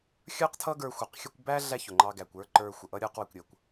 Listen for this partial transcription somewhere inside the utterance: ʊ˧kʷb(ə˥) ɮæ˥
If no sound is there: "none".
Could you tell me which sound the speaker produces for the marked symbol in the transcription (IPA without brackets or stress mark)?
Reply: æ˥